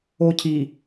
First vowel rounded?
yes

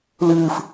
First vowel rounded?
no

